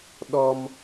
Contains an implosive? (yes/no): yes